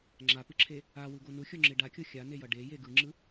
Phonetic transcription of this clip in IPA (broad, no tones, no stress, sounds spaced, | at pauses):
ŋ͡ǁ a p ɯ ǁʰ e | a w ɯ ɡ o n u xʲ o ŋ͡ǁ e ɖ a kʲ o xʲ a n e j ʌ ɖ e j e ɡ ɯ ŋ͡ǁ ɯ